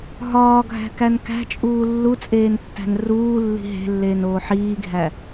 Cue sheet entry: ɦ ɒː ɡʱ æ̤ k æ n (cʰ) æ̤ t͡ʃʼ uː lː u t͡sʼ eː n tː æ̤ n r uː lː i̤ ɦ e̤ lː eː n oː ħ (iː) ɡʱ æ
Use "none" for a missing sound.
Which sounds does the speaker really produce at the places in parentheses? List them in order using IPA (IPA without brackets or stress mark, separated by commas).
k, iː